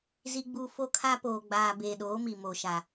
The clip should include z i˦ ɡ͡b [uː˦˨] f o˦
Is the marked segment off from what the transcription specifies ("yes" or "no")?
yes